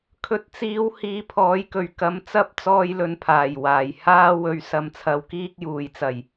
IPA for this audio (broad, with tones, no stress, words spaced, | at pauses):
kʰɵ˧t̚t͡siː˧w hiː˧pʰɔː˨˥jkɵ˨ɥ kɐ˧mt͡sɐ˥p̚ t͡sɔː˥jlɵ˧npʰaː˨˩jwaː˨˩j haː˥wɵ˧ɥsɐ˧m t͡sʰɐ˧wkiː˥k̚juː˨jt͡sɐ˨˩j